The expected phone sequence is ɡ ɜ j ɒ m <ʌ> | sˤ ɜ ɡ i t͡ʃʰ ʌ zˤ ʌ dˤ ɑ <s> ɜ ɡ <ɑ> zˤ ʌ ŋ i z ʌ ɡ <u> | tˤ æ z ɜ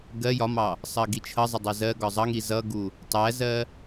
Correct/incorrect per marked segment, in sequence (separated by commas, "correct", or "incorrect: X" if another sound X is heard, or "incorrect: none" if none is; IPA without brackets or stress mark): incorrect: ɑ, incorrect: z, incorrect: ɒ, correct